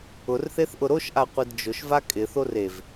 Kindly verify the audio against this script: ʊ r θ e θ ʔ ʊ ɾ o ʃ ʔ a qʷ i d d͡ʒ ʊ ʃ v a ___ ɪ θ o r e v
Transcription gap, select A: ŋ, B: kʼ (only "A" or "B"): B